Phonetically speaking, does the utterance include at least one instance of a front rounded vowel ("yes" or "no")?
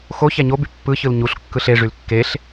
yes